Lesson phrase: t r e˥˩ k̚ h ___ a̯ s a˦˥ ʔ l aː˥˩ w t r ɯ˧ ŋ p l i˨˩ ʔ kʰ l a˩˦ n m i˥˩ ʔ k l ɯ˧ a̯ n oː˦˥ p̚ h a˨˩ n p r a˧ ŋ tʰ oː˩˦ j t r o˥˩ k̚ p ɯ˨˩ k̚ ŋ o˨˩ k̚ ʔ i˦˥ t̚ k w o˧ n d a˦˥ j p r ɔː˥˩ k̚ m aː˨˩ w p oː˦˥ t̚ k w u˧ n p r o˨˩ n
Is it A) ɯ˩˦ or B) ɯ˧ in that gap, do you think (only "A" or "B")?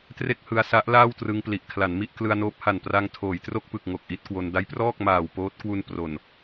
B